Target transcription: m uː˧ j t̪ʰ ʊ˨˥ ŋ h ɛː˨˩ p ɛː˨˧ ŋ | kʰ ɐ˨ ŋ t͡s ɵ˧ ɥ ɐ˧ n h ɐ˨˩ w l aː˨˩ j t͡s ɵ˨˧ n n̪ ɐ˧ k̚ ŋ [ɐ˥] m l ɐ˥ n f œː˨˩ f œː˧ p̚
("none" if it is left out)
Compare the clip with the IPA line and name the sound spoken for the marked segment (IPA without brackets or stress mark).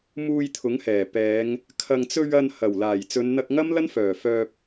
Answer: ɐ˥